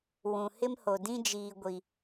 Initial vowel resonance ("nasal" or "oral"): nasal